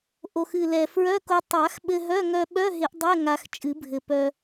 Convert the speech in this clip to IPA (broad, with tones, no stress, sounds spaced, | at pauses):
ʔ o˨˩ x ɨ˨˩ l ɛ˨˩ f ɹ œ˧˥˧ k o˧ tˤ a˨˩˦ x ɓ ɘ˧ ɦ œ˧˥˧ ŋ œ˧ ɓ œ˧˥˧ ɦ ɪ˨˩˦ ʔ dˤ ɛ˧˥˧ ŋ a˧ x t͡ʃʼ ɨ˨˩˦ bʱ ɘ˨˩ p œ˧